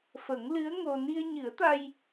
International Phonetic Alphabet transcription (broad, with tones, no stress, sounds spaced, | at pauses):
f ə˨˩˦ ŋ l ɨ˧˥ ə̯ ŋ o˧ n i˧ ə̯ ɲ ɨ˨˩˦ ə̯ t̪ a˧ j